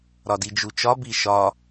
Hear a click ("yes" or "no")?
no